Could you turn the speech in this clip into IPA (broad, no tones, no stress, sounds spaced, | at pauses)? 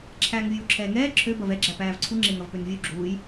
ǁʰ æː ŋ vʲ uː ǁʰ ɛː ŋ ɛː ǁʰ ø b ɐ v ɛ ɡ͡ǁ æ p æː v ǀʰ u ŋ͡ǁ e ŋ ɐ v p ø n vʲ u ɡ͡ǁ uː j